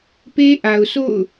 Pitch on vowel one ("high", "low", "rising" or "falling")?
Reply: high